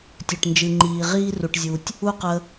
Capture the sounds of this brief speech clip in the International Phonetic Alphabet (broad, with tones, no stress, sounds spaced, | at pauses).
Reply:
tʲ ø˨ ʈ n d͡ʒ ɨ˨ ŋ͡ǃ iː˨ ʁ iː˦ r u˨ ʈ zʲ u˨ tʲ | u˦ q ə˧